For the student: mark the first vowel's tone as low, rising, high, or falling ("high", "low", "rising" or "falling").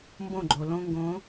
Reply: falling